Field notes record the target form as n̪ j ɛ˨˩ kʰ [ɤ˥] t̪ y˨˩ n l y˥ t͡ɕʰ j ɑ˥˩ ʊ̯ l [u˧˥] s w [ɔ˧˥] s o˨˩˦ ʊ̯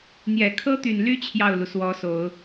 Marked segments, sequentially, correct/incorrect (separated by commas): correct, incorrect, correct